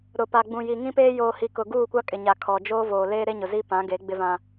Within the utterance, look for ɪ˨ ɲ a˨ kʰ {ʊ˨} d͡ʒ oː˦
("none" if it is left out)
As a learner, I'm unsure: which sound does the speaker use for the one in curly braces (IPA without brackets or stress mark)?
ɔ˨